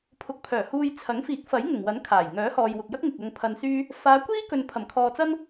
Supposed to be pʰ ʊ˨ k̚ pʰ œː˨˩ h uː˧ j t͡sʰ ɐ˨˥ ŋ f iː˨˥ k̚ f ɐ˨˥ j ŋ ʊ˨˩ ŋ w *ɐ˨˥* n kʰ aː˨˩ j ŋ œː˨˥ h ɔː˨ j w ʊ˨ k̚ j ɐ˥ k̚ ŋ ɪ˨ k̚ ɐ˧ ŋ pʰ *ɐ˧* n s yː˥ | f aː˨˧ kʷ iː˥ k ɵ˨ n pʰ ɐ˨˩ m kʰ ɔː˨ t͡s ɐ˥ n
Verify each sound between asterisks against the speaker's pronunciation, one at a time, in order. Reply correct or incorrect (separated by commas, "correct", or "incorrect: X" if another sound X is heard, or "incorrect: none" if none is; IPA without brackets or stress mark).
correct, correct